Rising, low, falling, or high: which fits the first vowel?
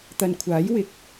low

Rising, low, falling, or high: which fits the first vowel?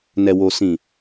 low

